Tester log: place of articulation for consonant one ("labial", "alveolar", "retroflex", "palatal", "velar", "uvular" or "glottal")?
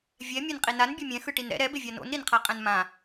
labial